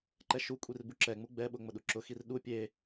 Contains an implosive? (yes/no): yes